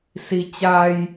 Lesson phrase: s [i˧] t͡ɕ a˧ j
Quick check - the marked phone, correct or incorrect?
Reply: correct